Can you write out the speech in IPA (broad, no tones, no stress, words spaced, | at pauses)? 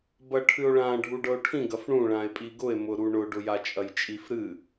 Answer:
bɐʈʰɨo̯ɭã ɖʱuɖɤo̯ʈʰĩ ɡɐfɳũ ɭãe̯pʼiɡʊe̯ mʊɾuɳʊ ɖʊjat͡ʃʼɐjt͡ʃʼif ɾɨ